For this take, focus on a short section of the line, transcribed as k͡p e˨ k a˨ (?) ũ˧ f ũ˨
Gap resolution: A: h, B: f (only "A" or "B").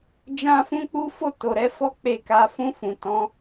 B